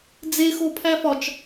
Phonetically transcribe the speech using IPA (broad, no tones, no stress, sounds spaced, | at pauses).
d͡z e x o pʰ æ f ɒ t͡ʃ